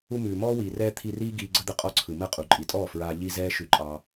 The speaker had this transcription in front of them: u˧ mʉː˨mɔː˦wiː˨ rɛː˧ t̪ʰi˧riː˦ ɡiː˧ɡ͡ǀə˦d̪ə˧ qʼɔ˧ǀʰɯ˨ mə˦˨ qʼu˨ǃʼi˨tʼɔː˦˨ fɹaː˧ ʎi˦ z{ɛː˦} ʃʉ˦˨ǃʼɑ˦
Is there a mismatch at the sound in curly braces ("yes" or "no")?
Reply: no